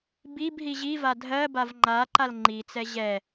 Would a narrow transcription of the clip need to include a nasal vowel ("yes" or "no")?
no